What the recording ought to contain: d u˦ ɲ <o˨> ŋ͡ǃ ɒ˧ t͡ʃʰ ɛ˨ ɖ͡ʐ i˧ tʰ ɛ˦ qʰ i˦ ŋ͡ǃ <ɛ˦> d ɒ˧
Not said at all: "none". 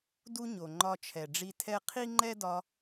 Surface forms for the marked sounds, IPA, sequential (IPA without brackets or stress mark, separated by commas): o˨, ɛ˦